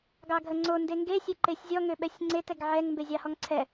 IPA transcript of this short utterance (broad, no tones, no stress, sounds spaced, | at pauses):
ɡ ɑ ɡʱ ə ŋ͡ǀ o n d e ŋ ɡ e sʲ e ǃ e sʲ zʲ ɔ ŋ ø ɓ ɛ sʲ ŋ͡ǀ e t ɛ ɡ ʕ ɛ ŋ m b e zʲ ɑ h ɔ ŋ ǀʰ ɛ